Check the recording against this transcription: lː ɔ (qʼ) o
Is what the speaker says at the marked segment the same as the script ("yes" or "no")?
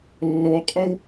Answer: yes